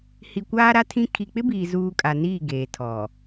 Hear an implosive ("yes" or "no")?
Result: no